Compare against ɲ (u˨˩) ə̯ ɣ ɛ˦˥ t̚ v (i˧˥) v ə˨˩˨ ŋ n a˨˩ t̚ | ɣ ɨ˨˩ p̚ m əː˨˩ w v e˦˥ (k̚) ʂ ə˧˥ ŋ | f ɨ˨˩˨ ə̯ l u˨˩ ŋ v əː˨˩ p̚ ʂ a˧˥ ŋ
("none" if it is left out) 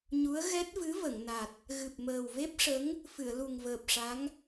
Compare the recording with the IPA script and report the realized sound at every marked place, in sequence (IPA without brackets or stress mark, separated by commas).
u˧˥, ɨ˧˥, p̚